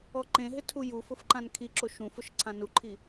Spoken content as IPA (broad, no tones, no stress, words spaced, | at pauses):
ɔǃẽɦɪ tʰujufʊf ǃãnkʰiǁo ʃũfʊʃ ǀʰãnuǃʰi